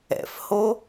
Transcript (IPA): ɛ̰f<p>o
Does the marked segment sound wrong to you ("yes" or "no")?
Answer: yes